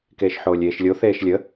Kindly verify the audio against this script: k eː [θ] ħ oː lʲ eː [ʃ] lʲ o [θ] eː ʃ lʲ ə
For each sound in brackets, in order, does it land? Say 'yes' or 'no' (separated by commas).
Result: no, yes, yes